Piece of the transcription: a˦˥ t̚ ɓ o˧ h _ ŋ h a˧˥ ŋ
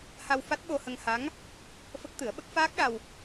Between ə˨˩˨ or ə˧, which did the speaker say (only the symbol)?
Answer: ə˧